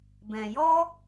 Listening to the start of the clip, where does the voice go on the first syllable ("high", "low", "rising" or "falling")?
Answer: low